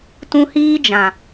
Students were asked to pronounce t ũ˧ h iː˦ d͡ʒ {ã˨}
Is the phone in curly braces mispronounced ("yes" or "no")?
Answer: no